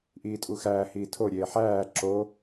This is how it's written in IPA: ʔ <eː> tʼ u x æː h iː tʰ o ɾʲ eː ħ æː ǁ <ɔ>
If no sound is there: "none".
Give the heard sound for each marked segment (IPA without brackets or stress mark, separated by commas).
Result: iː, o